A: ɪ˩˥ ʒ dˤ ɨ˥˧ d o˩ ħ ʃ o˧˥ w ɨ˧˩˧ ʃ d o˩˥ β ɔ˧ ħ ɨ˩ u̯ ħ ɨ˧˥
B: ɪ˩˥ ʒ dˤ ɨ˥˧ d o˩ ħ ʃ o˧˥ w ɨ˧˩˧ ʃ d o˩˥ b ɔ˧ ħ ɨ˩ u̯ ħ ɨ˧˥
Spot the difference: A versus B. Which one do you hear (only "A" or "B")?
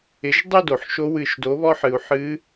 A